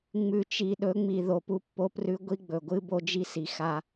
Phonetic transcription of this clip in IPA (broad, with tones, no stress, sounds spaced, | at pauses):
ŋ͡m ʉ˨ t͡ʃ i˨ ɗ ɵ˨˦ ŋ͡m i˨ ð o˨ p u˦ pː o˦ p r ʉ˦ ɡʷ i˦ ɡ͡b ɵ˨ ɡʷ ɨ˦ b o˦ d͡ʒ i˦ s i˨ x a˦